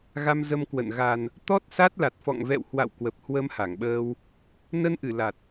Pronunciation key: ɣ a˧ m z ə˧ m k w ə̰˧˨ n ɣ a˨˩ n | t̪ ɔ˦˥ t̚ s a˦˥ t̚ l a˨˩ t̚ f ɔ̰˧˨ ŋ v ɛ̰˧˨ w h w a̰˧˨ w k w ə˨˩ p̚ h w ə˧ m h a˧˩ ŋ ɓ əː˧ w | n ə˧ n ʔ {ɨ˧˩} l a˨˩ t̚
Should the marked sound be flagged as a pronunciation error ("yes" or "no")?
no